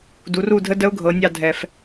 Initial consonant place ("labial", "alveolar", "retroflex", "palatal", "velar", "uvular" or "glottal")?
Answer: alveolar